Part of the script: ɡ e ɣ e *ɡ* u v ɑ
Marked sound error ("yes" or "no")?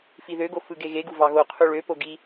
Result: no